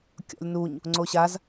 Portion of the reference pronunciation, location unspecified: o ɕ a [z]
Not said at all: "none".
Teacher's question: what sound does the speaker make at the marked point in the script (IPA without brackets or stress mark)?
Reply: z